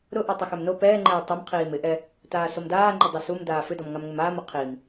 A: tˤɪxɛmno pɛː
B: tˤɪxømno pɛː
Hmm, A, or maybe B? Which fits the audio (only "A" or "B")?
B